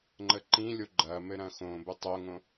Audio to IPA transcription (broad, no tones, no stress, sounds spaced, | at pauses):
ŋ͡ǃ ə ǃ ĩ lʲ o ɡ͡ǃ ɐ m ɘ ɾ ɐ̃ x õ b ɘ tˤ o ŋ õ